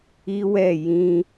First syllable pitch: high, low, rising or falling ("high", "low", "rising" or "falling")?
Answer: high